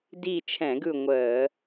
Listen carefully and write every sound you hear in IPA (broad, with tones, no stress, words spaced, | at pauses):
di˦˨ t͡ʃʰɛ̃˧˩˧ɡɯ˦˨ ŋʷəː˧˩˧